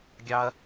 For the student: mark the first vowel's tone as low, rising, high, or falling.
high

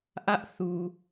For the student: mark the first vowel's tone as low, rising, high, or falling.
high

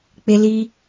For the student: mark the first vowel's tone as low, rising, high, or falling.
high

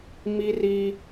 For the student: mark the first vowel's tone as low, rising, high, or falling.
high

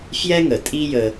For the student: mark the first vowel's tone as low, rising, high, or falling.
high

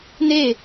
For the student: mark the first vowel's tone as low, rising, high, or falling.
falling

